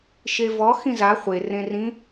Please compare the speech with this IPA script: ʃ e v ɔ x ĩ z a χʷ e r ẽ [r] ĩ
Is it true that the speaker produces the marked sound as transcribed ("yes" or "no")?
yes